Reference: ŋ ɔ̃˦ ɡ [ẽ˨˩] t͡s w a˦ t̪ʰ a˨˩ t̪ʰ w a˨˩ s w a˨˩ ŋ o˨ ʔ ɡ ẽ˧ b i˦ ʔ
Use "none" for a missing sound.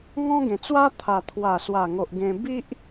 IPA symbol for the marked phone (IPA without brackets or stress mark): ẽ˨˩